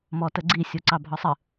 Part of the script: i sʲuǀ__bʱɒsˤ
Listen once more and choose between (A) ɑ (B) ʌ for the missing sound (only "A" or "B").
A